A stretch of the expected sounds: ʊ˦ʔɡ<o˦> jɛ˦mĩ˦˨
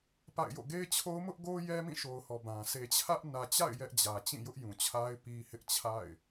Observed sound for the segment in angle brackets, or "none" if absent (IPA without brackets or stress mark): o˦